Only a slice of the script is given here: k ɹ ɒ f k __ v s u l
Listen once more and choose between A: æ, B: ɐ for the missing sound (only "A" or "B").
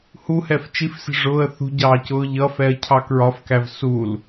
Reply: A